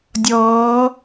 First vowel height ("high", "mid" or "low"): mid